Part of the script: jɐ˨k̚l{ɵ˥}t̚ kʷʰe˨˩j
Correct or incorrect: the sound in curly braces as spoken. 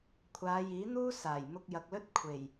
correct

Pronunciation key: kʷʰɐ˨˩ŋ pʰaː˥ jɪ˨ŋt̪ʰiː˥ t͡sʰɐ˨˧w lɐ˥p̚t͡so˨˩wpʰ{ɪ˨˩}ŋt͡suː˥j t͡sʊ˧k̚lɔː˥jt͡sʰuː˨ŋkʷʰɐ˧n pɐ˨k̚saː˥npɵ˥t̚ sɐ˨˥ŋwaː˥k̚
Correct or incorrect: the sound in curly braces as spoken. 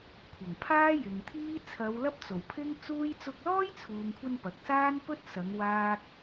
incorrect: ɪ˥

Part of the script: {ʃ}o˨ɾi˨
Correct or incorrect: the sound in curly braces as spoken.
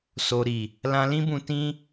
incorrect: s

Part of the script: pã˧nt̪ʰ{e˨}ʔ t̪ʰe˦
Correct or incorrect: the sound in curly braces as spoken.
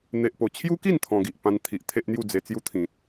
incorrect: i˨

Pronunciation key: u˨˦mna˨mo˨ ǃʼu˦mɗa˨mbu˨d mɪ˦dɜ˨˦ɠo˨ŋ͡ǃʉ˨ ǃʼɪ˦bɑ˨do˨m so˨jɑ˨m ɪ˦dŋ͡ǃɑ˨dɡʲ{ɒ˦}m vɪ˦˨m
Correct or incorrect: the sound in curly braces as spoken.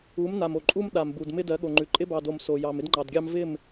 incorrect: ɑ˦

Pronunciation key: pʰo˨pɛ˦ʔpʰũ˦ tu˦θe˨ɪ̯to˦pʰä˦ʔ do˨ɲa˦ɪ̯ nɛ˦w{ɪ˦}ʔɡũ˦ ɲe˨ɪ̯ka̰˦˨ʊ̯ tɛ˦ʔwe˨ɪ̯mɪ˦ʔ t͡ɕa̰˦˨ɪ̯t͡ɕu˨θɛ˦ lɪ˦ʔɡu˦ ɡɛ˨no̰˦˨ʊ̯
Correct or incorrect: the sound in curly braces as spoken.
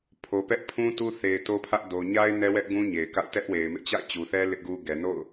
incorrect: ɛ˦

